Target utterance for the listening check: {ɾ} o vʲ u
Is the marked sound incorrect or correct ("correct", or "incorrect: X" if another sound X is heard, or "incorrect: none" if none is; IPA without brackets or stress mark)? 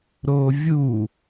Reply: correct